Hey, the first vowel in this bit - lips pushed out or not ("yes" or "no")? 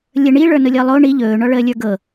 no